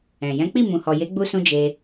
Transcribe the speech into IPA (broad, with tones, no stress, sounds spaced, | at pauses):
ɛ̃˨ j ɛ̃˨˦ k͡p i˦˨ m ũ˨ h ɔ˨ j e˨˦ ɡ͡b u˧ s ũ˧ d͡ʒ e˧